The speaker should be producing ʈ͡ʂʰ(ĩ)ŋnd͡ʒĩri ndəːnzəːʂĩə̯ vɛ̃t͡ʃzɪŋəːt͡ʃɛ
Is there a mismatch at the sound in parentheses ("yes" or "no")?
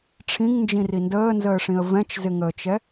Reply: no